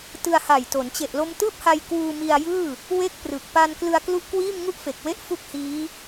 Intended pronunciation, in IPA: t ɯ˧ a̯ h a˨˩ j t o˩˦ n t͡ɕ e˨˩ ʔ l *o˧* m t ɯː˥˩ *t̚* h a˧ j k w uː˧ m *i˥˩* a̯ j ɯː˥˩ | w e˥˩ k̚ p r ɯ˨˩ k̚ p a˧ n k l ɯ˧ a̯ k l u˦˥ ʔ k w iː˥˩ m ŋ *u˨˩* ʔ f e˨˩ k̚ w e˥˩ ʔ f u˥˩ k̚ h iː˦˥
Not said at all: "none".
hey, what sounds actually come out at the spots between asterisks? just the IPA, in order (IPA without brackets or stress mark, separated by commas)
o˧, p̚, i˧, u˥˩